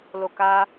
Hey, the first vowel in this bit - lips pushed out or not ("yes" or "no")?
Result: yes